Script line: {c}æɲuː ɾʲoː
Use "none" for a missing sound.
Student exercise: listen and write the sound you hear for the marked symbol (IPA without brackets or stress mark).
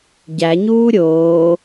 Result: ɟ